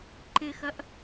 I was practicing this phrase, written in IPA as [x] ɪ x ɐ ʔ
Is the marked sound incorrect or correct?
incorrect